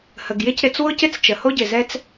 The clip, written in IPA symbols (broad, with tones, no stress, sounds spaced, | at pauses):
h ə˩ ɡ j ɪ˥ c ɾ ɪ˧ t͡s w ʊ˥ c ɪ˥ t͡s t͡ʃ ə˩ h o˥ ɟ ɪ˩ z ɛ˥ t͡s